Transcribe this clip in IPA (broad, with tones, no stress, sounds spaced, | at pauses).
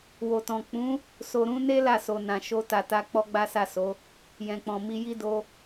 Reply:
w o˨ t ɔ̃˨ k͡p ũ˨˦ | s o˨ ɾ ũ˧ n e˦ l a˦˨ s o˨ n ã˨ ʃ o˧ t a˨ t a˧ k͡p ɔ˦ ɡ͡b a˦ s a˦˨ s o˨˦ | j ɛ̃˨ k͡p ɔ̃˨ m i˧ j i˦ d o˧